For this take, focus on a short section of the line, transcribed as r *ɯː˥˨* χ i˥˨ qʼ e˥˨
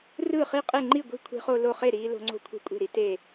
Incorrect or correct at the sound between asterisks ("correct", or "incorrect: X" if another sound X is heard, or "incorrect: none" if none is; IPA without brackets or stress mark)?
correct